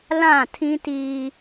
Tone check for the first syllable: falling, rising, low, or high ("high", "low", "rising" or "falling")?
falling